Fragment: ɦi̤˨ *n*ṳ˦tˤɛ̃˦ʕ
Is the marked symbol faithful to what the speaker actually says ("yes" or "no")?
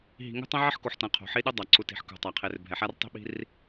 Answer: no